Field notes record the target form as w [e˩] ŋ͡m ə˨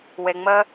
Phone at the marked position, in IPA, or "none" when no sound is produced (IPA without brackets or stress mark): e˩